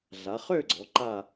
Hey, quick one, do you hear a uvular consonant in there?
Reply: yes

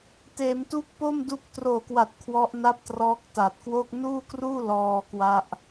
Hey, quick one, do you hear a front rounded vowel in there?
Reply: no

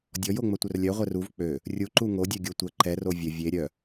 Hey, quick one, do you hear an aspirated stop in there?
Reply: no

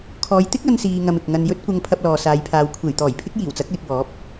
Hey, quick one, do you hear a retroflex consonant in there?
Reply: no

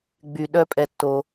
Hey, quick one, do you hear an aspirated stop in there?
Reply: no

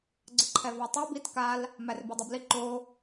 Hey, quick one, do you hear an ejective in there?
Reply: no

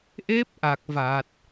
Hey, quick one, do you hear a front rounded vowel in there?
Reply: no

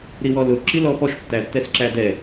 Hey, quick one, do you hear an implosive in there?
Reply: no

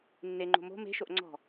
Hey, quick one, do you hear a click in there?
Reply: yes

